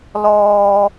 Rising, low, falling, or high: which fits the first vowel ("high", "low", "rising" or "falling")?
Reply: low